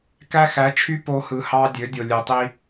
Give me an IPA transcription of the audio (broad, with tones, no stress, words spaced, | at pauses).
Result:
kæ˦xæ˨˦t͡ʃʰy˦ po˧hɯ˨hɑ˧ dʲø˨˦dʲo˨ lʲe˨tˤi˧